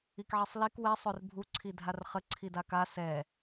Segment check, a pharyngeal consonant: present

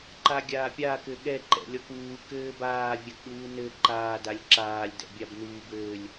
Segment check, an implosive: present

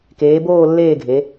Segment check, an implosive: absent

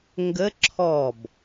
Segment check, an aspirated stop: present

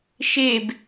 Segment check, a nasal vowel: absent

